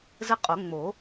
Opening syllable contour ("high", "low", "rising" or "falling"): high